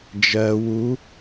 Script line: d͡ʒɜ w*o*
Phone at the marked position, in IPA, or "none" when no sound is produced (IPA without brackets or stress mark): u